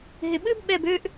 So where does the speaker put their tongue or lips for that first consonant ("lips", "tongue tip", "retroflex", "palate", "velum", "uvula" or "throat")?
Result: throat